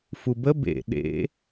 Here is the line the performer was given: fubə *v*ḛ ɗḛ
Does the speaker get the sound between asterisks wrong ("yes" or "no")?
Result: yes